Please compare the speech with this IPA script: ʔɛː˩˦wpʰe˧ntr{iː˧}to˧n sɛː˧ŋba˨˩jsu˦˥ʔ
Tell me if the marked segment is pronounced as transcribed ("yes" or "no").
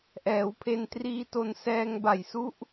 yes